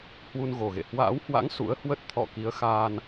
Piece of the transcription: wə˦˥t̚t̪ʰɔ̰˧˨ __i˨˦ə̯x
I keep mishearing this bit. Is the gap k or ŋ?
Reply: k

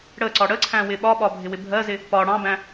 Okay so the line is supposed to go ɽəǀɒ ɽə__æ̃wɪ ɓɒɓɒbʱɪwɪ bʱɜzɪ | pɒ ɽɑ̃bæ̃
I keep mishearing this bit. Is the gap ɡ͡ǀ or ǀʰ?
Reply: ǀʰ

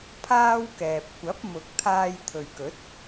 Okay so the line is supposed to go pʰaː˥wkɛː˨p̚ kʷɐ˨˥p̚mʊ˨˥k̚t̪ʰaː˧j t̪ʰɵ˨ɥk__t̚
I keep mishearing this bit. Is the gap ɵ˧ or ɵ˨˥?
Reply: ɵ˨˥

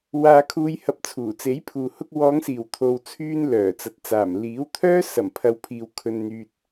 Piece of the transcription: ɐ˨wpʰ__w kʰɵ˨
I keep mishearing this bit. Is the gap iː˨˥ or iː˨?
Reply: iː˨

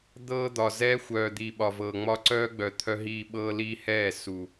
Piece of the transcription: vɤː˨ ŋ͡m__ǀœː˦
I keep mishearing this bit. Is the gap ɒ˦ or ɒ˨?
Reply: ɒ˦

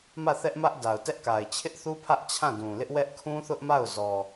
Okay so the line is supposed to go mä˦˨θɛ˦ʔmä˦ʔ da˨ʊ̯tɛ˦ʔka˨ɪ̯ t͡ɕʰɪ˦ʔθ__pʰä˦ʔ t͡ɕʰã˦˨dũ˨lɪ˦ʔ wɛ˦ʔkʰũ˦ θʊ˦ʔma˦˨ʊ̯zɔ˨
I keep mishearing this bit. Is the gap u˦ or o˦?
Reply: u˦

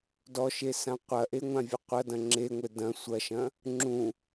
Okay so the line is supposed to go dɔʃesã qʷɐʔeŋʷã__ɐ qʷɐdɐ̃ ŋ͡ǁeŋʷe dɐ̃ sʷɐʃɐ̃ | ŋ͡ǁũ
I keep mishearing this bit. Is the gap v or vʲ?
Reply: vʲ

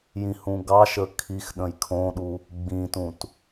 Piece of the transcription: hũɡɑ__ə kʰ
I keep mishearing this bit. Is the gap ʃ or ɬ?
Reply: ʃ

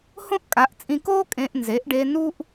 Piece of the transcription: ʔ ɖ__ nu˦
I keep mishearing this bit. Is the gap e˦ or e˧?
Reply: e˧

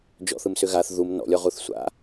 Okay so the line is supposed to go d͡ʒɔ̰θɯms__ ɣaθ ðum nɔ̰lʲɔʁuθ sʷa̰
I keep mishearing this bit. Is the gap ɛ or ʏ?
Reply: ʏ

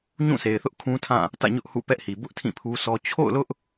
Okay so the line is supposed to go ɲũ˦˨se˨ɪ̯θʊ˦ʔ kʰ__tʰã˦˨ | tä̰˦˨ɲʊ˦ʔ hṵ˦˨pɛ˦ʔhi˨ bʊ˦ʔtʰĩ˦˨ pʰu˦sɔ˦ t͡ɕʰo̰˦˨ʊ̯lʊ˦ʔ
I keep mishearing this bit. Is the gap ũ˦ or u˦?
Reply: ũ˦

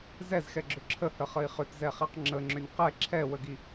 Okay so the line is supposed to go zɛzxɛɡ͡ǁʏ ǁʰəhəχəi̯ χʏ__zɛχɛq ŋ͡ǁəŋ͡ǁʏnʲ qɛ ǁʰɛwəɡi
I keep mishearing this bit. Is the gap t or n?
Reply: t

